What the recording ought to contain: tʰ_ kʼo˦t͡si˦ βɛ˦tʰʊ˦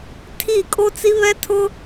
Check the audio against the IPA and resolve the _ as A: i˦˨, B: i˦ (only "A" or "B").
A